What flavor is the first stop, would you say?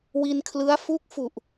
aspirated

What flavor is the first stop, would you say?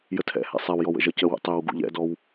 aspirated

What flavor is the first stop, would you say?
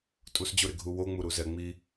ejective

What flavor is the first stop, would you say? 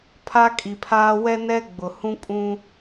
aspirated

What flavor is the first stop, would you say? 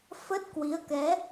plain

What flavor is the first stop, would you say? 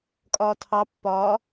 ejective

